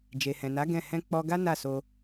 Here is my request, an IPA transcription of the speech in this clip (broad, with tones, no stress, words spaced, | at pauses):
d͡ʒe˨hɛ̃˨na˨˦ ɡɛ̃˦˨ hɛ̃˧k͡pɔ˧ɡa˦ na˦˨so˧